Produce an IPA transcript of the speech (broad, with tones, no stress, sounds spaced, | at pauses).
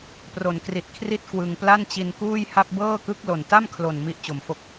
p r o˩˦ n k r i˨˩ t̚ kʰ r i˥˩ t̚ k w ɯ˧ ŋ p l a˥˩ n t͡ɕ i˧ n k uː˥˩ j h a˥˩ p̚ b ɤː˥˩ k ɯ˦˥ k̚ l o˨˩ n t a˥˩ m kʰ l o˨˩ n m i˥˩ ʔ t͡ɕ o˩˦ m f o˥˩ k̚